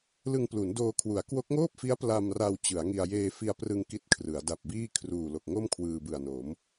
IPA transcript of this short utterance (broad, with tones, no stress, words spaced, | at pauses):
lɯ˧ŋplu˩˦ndoː˧kʰwu˩˦a̯ kwo˦˥k̚ ŋoː˥˩p̚fi˦˥a̯ pla˧mra˧w t͡ɕɯ˩˦a̯ŋi˧a̯ jeː˧fi˧a̯prɯ˧ŋ ki˥˩t̚kʰrɯ˩˦a̯ da˨˩p̚biː˥˩ kʰruː˨˩lo˨˩k̚ŋo˥˩m kʰwɯː˧bɯ˨˩a̯no˩˦m